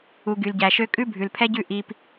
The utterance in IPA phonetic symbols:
u˨ ɡ y˨ l ɟ æ˨ ʃ ø˦ kʼ ʉ˦ bʱ ʉ˨ l pʰ ɛ˦ ɟ ʉ˦˨ ʔ i˦ p

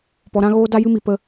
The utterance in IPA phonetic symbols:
p ɔ˧ ɾ ã˦ ɣ oː˦ d a˦ j ɨ˦ m i˧ p ə˧

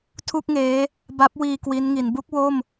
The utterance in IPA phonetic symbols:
tʰ u˥˩ k̚ ŋ eː˦˥ | b a˦˥ p̚ w iː˧ k w i˦˥ n ŋ i˩˦ n b u˥˩ k̚ w o˥˩ m

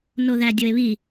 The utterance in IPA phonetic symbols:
n o ð æ dʲ o e̯ β i

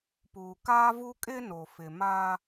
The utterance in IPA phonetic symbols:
p uː˨ k aː˦ v u˦ kʼ ɪ˦ n o˨ f ɪ˨ m a˦

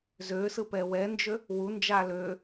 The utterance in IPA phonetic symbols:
z ø s ɯ p ɛ w ɛ n d͡ʒ ø | w u n d͡ʒ a l ø

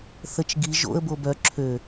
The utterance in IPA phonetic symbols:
θ ə t͡ʃ ɡ i ʒ o̰ ə̯ b o b œ ǁʰ ø

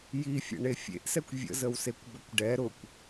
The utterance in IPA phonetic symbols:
j i fʲ ə̰ ɳ e fʲ ḛ ʔ s ɛ kʷ vʲ ə̰ z ə w s e kʷ b ə kʷ ɖ ɛ ɾ ʊ kʷ

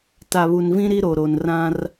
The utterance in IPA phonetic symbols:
t a˨ β u˨ n v ĩ˦ ɾ i˦ ɾ o˨ ɾ o˨ n r ã˦ r

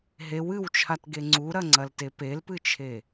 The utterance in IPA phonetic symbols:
ɦ e w ɨ w t͡ʃʰ a t ɡ e ŋ͡ǀ u ɾ ɐ ŋ͡ǀ ɐ l t e p e l p ɨ t͡ʃʰ e

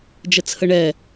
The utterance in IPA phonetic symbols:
d͡ʒ ə t͡sʰ ə ɳ ɛ

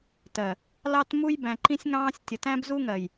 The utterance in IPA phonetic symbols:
t ɜ˨ | l ɑ˦ t m u˦ j b æ̃˨ ǃ ĩ˦ sʲ ŋ ɑ̃ː˦ sʲ tʲ ə˨ t æ̃˦ b z u˦ ŋ ɜ˨ j

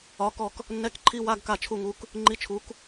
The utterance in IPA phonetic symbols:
ɒ˨˥ k ɔ˦˨ k | nː ɛ˧˥˧ k ǃʰ i˧˥˧ w a˧˥˧ ɡ k a˦˨ t͡ʃʰ u˦˨ ŋ u˨˥ k | ŋ͡ǃ i˧˥˧ t͡ʃʰ u˨˥ k

